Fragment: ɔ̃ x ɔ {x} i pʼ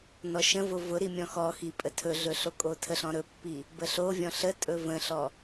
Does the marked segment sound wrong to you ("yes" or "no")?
no